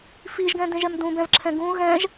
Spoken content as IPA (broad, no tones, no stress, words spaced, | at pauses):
fiʒɡɛ̃dẽʒɛm dũbɛ̃vǁʰɛ̃ ɡũ ɣɛ̃ʒ